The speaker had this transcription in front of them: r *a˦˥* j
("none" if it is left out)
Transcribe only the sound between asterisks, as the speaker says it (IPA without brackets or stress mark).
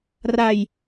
a˧